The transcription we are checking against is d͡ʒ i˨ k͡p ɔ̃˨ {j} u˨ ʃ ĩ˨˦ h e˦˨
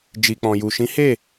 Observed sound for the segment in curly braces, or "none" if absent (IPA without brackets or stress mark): j